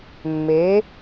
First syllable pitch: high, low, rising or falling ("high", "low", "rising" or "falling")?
rising